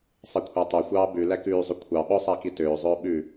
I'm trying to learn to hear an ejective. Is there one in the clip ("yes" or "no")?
no